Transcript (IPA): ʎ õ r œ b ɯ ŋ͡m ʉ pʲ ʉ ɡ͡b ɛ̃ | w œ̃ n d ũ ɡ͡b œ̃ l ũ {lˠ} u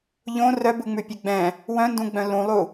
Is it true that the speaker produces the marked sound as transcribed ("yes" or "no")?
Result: yes